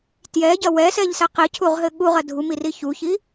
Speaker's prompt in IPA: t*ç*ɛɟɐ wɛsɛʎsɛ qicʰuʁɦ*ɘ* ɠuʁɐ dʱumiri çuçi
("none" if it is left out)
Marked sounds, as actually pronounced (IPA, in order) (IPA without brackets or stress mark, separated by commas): j, ɘ